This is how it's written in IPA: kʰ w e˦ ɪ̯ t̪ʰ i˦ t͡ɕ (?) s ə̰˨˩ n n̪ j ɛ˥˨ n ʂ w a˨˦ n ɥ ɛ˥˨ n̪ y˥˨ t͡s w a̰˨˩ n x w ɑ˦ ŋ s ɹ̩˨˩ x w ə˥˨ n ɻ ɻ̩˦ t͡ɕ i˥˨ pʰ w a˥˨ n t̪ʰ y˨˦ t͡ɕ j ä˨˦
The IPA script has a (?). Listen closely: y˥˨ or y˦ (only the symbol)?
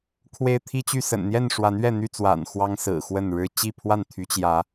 y˥˨